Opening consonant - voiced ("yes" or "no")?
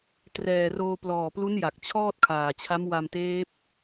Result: no